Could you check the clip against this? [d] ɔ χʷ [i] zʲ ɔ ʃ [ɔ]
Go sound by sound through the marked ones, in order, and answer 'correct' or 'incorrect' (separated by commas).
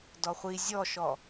correct, correct, correct